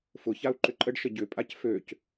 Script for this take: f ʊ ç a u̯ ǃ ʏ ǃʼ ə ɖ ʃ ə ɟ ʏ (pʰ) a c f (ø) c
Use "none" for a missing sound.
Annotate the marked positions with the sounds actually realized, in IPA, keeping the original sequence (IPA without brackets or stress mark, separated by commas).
pʼ, ø